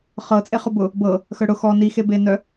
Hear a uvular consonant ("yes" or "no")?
yes